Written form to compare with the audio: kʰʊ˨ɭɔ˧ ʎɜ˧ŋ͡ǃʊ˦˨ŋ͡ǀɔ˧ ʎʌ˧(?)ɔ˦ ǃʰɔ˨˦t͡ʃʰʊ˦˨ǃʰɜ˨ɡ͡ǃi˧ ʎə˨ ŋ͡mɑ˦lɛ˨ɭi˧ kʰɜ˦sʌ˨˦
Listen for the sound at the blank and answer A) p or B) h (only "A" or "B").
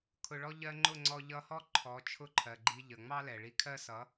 B